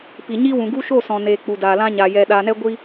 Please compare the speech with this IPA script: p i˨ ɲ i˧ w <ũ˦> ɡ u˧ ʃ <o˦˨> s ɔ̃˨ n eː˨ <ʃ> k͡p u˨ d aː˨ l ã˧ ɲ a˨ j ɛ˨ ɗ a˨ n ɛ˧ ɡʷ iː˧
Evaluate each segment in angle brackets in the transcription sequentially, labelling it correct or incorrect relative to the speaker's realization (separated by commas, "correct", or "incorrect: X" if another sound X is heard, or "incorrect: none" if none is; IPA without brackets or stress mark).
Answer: incorrect: ũ˨, correct, incorrect: none